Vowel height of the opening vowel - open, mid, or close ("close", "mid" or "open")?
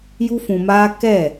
close